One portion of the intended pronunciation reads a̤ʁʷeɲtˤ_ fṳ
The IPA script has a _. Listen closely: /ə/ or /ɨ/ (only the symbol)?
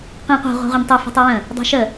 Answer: ɨ